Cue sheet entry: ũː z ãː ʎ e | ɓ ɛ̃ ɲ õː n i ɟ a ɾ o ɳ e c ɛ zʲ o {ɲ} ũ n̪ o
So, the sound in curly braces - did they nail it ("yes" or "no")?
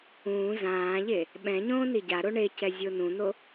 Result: no